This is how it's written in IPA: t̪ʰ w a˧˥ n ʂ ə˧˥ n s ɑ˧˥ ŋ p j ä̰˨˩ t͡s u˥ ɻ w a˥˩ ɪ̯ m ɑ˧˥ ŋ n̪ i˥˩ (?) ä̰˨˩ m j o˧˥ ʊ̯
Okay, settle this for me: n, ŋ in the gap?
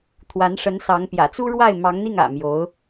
ŋ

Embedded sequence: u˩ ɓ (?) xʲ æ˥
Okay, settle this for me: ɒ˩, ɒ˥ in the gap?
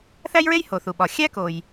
ɒ˩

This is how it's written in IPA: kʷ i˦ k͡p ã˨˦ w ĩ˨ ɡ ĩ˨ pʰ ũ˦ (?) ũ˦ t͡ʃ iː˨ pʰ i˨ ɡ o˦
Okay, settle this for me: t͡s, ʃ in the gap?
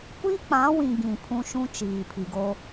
ʃ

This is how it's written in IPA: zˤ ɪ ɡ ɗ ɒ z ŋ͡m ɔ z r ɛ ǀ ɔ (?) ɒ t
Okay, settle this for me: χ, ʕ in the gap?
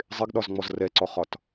χ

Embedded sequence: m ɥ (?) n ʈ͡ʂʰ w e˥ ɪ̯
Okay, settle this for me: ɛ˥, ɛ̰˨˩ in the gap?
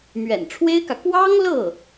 ɛ̰˨˩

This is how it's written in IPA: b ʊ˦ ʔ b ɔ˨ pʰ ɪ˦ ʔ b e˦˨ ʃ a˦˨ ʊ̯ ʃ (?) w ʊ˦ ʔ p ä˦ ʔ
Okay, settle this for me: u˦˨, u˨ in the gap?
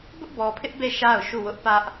u˦˨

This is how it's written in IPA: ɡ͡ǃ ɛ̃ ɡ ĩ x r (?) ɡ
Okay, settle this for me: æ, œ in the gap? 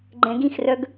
œ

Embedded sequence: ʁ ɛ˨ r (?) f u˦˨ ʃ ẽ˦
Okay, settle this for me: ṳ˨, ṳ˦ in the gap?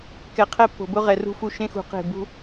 ṳ˦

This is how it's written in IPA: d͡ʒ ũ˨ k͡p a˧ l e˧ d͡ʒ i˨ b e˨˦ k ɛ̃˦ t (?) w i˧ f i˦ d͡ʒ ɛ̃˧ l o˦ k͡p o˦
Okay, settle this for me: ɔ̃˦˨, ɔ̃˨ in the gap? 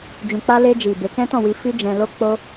ɔ̃˦˨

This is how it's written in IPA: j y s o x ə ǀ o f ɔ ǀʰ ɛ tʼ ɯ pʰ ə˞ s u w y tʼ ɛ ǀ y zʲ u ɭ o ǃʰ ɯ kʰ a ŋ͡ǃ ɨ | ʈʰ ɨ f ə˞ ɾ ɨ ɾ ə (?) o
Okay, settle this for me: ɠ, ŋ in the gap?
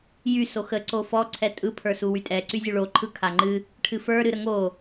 ŋ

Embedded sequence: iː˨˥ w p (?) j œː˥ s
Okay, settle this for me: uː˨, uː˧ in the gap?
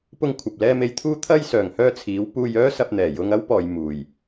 uː˧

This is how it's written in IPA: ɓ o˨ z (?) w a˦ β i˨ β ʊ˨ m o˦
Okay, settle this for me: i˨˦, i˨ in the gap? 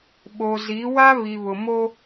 i˨˦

